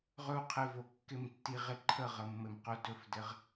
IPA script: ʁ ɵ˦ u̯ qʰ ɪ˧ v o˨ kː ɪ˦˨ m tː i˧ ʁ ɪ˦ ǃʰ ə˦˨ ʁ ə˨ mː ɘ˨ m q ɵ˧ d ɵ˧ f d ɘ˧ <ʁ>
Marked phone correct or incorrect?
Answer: correct